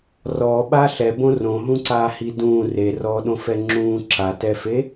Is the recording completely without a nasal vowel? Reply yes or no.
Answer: no